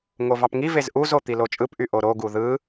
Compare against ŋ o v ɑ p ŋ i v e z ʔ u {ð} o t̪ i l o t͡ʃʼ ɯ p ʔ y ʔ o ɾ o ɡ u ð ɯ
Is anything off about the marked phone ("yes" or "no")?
yes